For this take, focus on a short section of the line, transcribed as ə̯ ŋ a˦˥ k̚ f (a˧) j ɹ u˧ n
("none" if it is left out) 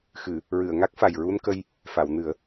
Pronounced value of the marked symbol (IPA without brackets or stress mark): a˨˩